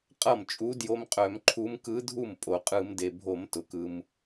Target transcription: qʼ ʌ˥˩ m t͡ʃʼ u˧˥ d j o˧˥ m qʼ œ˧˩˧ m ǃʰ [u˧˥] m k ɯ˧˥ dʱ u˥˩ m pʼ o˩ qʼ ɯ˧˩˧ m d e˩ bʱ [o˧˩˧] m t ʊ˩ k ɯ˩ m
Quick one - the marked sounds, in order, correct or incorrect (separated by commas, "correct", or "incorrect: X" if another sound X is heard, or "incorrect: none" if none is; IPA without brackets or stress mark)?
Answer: correct, correct